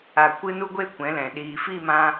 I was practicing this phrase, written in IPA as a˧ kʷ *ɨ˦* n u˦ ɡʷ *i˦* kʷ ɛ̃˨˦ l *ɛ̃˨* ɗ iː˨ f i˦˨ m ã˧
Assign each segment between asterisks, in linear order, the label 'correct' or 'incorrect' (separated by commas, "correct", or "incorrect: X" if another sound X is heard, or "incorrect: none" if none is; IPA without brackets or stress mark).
correct, incorrect: e˦, correct